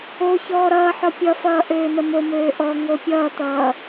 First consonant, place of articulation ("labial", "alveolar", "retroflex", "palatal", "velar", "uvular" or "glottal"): palatal